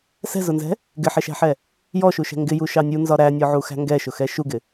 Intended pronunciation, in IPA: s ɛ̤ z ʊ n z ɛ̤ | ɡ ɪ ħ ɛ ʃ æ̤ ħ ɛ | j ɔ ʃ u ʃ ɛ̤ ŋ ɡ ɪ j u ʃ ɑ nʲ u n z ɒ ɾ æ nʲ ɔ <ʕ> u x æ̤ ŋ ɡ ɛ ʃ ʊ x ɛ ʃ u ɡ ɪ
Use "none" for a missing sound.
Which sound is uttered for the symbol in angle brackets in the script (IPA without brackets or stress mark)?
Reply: ʕ